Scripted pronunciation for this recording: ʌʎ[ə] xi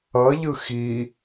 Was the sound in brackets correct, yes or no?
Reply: no